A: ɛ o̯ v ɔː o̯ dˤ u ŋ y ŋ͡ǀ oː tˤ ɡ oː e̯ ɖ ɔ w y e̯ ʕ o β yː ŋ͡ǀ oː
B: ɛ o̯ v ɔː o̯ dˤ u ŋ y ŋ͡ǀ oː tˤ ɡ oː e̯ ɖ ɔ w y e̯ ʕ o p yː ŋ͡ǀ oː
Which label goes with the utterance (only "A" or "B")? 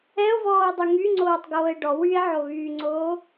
A